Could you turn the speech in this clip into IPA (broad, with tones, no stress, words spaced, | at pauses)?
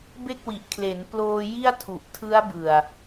be˥˩k̚wi˨˩ʔkʰle˩˦n ploː˧ ji˥˩a̯tʰu˨˩ʔ tʰɯ˦˥a̯bɯ˨˩a̯